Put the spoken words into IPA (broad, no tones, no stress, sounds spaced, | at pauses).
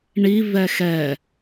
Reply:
ɳ i v ɛ x ɛ